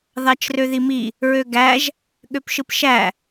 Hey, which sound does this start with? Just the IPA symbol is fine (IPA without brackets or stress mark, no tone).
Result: ð